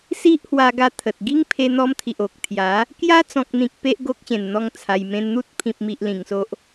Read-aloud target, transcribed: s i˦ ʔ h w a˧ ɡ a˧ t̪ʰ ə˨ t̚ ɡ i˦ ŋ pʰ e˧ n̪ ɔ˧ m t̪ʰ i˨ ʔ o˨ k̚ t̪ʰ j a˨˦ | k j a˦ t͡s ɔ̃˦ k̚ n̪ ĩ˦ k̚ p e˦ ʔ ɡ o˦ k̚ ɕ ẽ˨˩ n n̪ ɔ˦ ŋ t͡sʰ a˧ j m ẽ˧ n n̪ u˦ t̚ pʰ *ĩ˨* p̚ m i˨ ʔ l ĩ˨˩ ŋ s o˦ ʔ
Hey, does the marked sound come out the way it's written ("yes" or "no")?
yes